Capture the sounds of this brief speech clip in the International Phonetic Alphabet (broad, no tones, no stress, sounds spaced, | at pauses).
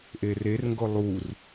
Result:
ʔ e r e r ŋ ɡ o lˠ u r